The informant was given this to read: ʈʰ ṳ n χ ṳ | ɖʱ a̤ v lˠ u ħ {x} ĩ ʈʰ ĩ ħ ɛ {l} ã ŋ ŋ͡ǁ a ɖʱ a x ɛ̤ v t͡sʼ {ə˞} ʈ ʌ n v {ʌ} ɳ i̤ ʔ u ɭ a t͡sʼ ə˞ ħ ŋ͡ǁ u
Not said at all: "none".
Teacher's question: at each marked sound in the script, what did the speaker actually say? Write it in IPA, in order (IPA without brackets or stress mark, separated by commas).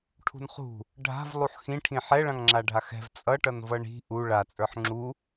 x, ɭ, ʌ, ʌ